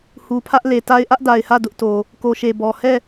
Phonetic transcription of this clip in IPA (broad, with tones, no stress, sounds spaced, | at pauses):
h u˨ pʰ ä˦ ʔ l e˨ t a˦ ɪ̯ ʔ ä˦ ʔ d a˨ ɪ̯ h ä˦˨ d ʊ˦ ʔ t o˨ | k o˨ ʃ e˨ b ɔ˨ h ɛ˦˨